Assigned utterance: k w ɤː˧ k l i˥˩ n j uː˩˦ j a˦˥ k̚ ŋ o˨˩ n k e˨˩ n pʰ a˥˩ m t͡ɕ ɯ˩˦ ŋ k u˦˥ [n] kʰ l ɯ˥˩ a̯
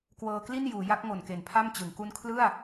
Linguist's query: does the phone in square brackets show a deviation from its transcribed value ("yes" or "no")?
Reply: no